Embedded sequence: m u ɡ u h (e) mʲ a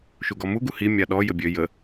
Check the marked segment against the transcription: incorrect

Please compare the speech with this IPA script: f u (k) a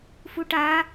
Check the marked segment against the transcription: incorrect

